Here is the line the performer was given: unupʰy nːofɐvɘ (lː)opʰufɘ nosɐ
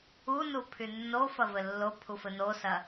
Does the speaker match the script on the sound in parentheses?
yes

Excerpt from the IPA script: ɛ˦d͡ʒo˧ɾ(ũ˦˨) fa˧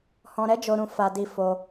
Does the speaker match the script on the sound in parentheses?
no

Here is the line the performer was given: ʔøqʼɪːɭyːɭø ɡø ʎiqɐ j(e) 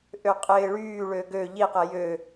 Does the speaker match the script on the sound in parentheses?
no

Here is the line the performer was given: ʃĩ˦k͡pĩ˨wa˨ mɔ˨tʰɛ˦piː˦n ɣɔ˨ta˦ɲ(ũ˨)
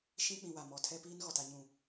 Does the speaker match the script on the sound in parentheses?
no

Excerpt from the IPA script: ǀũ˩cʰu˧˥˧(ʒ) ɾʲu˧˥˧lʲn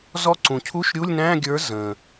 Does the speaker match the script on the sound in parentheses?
no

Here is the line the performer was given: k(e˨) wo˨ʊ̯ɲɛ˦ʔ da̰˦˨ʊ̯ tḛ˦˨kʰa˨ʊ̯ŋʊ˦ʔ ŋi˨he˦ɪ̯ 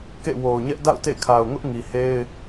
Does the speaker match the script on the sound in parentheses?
no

